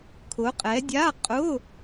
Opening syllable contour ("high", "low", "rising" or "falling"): rising